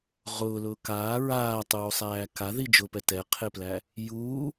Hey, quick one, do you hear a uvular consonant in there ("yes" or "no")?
yes